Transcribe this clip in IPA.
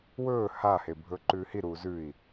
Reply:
wɵː hahebʱɵ ǃʉːhi ɾuːzʉi̯

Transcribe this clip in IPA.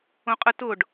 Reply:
õqʼə tʊɖ

